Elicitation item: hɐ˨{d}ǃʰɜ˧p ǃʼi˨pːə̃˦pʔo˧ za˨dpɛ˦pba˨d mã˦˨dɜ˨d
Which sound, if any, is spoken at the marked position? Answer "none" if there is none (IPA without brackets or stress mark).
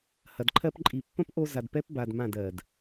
d